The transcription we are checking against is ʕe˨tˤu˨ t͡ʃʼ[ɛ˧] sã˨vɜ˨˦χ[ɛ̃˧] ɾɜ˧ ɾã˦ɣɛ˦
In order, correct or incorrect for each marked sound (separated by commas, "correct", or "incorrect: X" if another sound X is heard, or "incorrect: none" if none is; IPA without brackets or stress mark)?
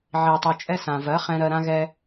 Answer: correct, correct